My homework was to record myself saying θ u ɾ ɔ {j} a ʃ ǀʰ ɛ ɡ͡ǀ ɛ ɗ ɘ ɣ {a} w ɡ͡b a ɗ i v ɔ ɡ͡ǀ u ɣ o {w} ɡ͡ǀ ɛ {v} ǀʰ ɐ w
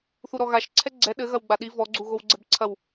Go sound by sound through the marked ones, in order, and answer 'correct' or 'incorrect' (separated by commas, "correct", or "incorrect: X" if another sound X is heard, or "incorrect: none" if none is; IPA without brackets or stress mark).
incorrect: ɣ, incorrect: ɐ, correct, incorrect: b